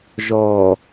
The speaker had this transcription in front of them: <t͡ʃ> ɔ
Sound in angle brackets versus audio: incorrect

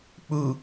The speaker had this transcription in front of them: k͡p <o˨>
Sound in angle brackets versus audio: incorrect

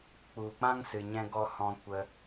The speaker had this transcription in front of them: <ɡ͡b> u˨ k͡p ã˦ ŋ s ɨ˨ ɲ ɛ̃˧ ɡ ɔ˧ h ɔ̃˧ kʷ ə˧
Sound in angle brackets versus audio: incorrect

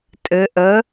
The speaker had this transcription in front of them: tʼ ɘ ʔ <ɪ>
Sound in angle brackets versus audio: incorrect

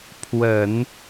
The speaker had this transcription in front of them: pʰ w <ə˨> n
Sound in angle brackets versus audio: incorrect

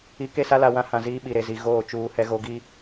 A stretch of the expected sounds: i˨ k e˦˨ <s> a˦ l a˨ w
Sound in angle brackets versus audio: correct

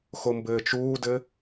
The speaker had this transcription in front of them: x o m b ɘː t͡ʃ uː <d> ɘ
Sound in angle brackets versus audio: correct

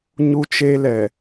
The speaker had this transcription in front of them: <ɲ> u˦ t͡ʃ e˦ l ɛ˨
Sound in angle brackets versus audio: correct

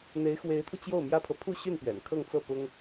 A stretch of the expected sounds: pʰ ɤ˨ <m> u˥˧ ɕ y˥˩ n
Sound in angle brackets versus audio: incorrect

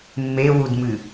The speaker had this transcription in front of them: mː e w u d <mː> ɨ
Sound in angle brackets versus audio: incorrect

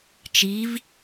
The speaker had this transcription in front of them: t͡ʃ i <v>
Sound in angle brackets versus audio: correct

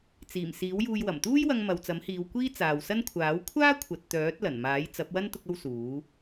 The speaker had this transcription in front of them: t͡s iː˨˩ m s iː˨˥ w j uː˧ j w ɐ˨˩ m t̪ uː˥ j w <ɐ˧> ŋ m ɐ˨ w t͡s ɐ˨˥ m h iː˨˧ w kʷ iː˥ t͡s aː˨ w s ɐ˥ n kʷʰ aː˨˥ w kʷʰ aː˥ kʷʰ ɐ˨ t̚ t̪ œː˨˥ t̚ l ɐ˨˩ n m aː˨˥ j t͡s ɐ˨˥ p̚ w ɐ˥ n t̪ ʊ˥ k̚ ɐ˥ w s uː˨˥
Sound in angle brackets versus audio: correct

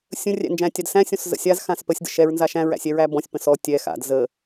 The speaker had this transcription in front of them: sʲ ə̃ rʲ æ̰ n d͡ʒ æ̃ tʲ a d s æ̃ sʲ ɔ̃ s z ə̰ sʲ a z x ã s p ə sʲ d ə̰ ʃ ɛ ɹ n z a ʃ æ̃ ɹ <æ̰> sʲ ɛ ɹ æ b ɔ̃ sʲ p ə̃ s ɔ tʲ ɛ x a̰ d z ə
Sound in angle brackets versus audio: correct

